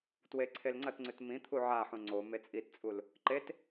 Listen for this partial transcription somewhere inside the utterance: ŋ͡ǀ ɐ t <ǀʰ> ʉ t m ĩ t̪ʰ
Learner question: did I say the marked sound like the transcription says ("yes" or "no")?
no